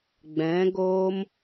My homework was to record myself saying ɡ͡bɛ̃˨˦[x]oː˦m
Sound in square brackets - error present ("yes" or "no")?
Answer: yes